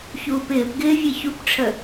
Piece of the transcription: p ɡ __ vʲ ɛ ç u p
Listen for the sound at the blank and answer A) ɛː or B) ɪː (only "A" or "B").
B